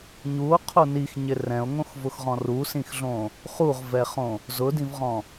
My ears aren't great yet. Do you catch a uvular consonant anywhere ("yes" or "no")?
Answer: yes